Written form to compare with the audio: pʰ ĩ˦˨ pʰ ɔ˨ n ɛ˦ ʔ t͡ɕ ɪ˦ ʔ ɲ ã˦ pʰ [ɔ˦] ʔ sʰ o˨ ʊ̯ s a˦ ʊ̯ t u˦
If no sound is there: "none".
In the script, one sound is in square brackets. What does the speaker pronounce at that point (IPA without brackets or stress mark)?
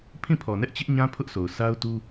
ʊ˦